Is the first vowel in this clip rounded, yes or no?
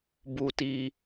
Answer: yes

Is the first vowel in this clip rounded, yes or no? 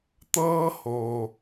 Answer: no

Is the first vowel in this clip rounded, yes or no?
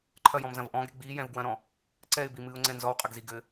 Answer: no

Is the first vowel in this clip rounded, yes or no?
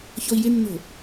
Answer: yes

